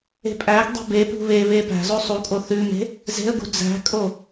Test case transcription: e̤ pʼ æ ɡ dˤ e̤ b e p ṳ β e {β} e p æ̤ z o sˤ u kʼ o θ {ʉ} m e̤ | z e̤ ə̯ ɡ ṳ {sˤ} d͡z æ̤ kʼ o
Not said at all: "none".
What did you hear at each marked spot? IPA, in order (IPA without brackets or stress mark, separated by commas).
β, ʉ, none